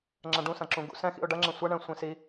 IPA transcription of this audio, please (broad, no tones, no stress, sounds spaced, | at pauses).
ŋ͡ǁ ɐ̃ ɖ ũ s ɐ̃ ǁ ũ ɡ ṵ s ɛ̃ x ḭ ʊ̯ ɖ ɐ ŋ͡ǁ ɐ̃ sʷ ɐ ɳ ɛ̃ sʷ ĩ s i